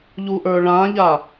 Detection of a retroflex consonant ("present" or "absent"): present